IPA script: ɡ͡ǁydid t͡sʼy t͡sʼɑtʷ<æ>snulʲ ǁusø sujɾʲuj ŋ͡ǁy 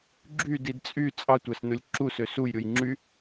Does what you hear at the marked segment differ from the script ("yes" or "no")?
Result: no